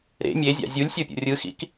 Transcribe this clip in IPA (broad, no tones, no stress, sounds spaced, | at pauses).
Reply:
ɾ ḛ mʲ e zʲ a̰ zʲ u lʲ sʲ o pʲ o̰ rʲ ɯ x ḭ k